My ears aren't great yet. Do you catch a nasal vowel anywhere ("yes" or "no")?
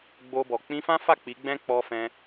yes